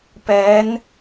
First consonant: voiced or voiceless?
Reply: voiceless